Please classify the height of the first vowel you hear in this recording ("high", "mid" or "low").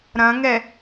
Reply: low